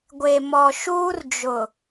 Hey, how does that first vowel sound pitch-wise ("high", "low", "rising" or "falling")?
low